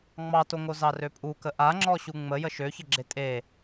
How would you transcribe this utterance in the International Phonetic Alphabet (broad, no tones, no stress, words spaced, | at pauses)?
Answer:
ŋ͡mɑtoŋo zɑrøpʼukə ʔa ŋ͡ǁɔɕuŋ͡mə jəʃøçəɡ͡ǁe tʼe